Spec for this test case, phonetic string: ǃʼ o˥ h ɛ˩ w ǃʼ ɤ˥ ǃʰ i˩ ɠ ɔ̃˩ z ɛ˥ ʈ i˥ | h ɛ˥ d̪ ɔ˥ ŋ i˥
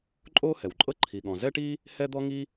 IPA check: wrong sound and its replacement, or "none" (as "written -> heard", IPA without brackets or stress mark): none